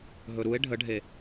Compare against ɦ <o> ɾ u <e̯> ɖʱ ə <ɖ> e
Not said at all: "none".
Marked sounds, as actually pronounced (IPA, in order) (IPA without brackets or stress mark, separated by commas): ɵ, e̯, ɖʱ